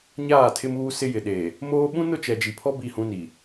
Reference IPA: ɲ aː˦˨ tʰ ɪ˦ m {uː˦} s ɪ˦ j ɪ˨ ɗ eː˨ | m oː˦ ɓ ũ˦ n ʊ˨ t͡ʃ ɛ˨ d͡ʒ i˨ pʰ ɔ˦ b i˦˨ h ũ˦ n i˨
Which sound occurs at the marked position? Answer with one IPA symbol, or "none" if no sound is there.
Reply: uː˦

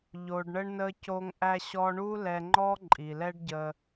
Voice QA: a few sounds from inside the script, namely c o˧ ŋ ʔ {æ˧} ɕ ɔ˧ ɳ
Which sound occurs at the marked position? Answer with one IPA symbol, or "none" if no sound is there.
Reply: æ˧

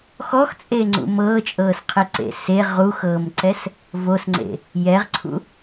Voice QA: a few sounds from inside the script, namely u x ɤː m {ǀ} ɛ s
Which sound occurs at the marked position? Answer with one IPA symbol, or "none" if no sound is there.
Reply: ǀ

